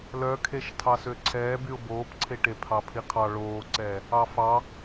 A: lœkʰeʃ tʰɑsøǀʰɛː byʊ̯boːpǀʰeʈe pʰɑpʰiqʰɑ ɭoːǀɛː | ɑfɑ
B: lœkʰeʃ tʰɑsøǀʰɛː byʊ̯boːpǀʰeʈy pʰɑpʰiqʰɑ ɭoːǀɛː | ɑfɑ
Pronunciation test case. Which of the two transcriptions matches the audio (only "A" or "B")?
A